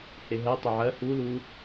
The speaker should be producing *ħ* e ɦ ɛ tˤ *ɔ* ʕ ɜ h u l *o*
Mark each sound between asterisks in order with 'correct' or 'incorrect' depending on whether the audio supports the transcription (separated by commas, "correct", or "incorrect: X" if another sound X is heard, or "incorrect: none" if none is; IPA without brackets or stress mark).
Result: incorrect: h, incorrect: ə, incorrect: u